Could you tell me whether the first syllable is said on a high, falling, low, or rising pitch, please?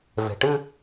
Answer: low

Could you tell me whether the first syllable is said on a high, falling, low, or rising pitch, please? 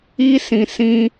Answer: high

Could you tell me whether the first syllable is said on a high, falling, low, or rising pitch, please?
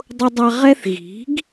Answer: high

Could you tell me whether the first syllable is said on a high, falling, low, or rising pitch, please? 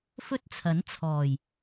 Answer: high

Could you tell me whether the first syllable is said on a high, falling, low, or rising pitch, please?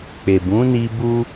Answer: low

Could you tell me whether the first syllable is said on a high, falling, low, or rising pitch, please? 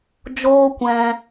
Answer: high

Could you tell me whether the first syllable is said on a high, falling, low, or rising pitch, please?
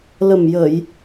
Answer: low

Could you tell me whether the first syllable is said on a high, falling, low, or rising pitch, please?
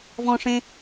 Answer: high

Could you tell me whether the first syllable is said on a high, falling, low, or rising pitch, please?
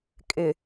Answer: low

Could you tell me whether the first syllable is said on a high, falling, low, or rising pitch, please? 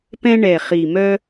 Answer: high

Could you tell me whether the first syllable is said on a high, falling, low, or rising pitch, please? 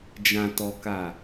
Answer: low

